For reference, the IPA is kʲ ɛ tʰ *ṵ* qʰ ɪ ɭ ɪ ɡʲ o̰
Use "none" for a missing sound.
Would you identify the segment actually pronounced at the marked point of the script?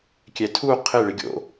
u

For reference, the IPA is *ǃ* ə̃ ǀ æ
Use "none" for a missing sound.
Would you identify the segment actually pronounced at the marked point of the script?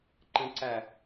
ǃ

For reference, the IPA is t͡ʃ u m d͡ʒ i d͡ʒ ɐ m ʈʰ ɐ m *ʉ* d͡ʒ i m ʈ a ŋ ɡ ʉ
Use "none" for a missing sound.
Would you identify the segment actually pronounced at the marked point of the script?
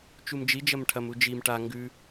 u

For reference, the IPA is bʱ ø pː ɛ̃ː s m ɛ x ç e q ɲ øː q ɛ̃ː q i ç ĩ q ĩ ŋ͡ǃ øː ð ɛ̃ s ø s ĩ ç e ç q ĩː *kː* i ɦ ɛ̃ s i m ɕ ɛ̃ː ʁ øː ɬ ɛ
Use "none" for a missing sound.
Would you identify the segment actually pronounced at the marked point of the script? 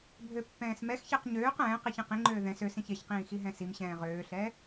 x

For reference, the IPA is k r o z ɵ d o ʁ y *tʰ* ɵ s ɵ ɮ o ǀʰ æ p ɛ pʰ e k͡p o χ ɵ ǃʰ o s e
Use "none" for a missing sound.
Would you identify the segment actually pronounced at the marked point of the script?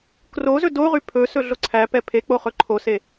pʰ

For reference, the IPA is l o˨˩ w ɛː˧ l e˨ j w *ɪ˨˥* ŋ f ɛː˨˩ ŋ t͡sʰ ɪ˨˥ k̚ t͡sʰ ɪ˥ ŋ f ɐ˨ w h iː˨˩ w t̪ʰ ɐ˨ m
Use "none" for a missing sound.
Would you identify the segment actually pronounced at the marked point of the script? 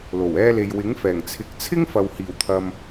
ɪ˨˥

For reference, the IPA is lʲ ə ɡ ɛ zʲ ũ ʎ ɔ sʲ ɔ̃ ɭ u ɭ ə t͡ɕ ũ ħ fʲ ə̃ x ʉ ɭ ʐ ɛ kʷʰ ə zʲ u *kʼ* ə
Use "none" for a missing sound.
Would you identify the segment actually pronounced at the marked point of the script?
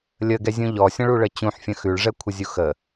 x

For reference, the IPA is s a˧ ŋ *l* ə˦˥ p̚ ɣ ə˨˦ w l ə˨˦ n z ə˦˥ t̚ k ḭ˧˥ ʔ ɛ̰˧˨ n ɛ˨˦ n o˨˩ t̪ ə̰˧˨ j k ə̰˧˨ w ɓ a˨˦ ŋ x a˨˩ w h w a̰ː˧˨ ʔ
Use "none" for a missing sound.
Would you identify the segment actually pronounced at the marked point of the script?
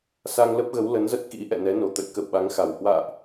l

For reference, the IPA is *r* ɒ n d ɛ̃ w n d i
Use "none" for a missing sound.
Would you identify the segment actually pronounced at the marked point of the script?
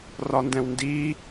r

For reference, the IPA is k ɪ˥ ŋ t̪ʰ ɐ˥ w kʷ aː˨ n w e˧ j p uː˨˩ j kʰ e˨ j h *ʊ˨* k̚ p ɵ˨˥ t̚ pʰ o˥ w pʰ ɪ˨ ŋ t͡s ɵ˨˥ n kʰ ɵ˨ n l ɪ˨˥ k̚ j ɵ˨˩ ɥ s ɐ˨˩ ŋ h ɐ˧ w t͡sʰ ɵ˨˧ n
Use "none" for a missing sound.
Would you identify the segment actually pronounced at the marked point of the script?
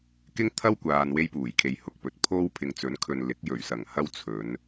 ʊ˨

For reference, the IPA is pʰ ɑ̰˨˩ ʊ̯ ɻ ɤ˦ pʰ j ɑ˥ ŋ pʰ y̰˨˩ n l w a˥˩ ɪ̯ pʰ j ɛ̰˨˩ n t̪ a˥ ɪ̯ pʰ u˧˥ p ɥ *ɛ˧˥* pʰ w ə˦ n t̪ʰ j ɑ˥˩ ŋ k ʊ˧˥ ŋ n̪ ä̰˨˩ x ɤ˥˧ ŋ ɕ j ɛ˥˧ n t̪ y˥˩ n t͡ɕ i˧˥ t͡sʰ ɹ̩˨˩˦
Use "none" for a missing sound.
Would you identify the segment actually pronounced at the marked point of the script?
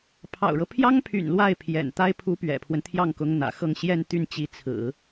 ɛ̰˨˩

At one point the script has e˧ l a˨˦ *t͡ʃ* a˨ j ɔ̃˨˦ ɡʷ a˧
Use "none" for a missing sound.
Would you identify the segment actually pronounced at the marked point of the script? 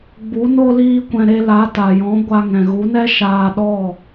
t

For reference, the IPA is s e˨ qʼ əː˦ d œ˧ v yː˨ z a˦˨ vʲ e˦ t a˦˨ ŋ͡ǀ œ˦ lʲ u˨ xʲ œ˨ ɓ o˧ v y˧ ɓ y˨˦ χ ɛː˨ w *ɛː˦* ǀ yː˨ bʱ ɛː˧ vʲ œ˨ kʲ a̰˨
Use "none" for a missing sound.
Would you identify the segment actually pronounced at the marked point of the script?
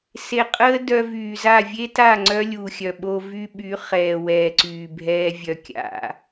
ɛː˨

